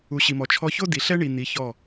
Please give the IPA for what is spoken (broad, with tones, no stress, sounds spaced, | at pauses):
u˨ ɕ i˨ m ɔ˨ t͡ʃʰ ɔ˧ ç o˦ d i˨ ɬ ɛ˦ ɳ i˨ n̪ i˨˦ ç ɔ˦˨